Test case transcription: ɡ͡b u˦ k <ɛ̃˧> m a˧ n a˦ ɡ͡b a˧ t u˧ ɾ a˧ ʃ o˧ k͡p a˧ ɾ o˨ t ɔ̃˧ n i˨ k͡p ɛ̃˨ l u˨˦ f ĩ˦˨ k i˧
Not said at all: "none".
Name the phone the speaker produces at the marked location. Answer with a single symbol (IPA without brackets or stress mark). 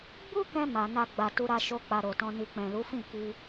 ɛ̃˧